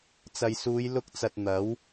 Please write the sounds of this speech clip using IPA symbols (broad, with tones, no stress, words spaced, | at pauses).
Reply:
t͡sɐ˨jsuː˨˧j lʊ˧k̚t͡sɐ˨t̚ n̪ɐ˨˥w